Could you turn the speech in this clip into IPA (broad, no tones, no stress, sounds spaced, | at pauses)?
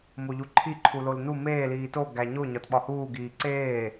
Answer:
m o ʎ u ǃʰ i ǃʰ u l o l n u m eː l iː t o ɡ æ ɲ o ɲ ɒ t ɓ ɒ h uː ɡ iː ǀ eː